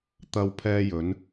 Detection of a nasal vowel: absent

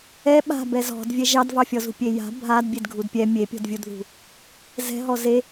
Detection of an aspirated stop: absent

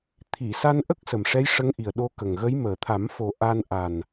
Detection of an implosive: present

